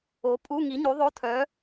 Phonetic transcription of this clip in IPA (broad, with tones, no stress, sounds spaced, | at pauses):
o˨˥ pʼ u˧˥˧ ŋ i˨˥ ɲ u˨˥ ðˤ o˧˥˧ tʰ œ˨˥